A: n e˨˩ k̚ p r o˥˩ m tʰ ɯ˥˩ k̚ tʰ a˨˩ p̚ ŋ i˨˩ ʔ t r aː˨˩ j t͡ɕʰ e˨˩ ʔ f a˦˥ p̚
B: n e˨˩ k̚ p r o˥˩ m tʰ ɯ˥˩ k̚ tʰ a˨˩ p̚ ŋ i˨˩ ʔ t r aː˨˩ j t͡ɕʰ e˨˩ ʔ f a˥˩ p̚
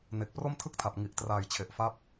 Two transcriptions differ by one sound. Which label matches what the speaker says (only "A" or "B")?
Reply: A